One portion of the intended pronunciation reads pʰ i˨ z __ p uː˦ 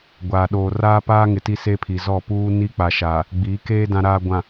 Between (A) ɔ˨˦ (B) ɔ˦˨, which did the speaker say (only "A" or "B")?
B